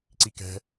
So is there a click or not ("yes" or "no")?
yes